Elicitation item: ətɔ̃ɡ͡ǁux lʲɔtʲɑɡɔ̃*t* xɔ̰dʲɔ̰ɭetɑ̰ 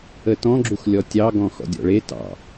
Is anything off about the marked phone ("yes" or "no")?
yes